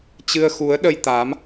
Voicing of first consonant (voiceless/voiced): voiceless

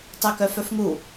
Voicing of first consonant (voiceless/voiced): voiceless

